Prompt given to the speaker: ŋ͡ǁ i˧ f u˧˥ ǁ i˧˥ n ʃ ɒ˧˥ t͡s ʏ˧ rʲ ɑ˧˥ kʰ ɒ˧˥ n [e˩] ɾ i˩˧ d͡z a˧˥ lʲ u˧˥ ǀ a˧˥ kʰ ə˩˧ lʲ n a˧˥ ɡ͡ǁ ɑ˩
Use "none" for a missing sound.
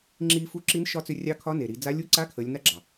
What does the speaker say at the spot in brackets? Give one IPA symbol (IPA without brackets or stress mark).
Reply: e˩